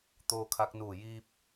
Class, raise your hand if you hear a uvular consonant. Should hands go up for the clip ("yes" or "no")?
no